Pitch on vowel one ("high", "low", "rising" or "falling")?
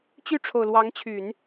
falling